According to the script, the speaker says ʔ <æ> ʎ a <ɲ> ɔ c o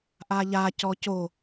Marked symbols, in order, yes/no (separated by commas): no, no